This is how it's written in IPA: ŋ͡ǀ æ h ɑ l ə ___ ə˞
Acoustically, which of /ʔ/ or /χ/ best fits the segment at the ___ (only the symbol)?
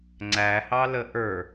ʔ